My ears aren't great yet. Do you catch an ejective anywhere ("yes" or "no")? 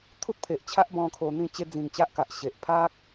no